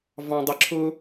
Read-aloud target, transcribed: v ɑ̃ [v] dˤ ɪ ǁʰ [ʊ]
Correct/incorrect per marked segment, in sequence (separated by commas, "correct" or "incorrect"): incorrect, correct